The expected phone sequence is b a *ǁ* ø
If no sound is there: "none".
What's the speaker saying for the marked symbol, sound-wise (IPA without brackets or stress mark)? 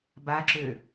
ǁ